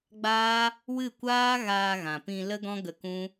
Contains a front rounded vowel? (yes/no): no